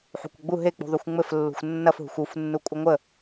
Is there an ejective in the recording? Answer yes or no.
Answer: yes